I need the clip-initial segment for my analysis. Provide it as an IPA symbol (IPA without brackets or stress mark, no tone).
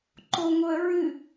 ǃ